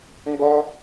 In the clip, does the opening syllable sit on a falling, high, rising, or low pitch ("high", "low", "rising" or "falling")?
high